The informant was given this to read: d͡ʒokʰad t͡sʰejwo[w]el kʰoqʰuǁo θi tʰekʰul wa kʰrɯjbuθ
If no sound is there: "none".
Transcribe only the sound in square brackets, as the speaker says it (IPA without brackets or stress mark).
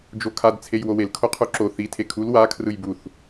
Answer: w